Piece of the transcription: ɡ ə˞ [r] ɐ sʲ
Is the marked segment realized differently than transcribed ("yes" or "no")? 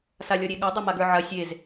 yes